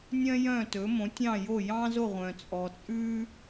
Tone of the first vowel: high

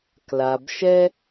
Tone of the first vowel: low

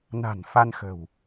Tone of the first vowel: low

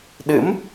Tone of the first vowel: rising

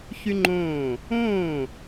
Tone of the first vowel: high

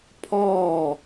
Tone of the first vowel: falling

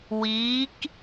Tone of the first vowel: rising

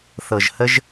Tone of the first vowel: low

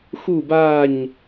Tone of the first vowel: falling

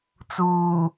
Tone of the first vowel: low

